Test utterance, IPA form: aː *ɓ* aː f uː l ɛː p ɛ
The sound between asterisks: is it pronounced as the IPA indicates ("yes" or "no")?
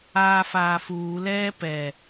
no